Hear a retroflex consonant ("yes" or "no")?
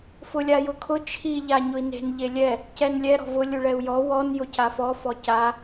yes